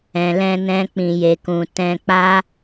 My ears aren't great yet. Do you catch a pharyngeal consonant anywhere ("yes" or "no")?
no